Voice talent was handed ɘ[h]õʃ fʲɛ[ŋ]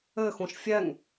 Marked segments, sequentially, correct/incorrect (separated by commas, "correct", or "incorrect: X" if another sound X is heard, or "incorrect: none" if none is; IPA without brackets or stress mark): incorrect: x, correct